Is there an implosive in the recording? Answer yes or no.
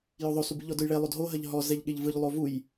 yes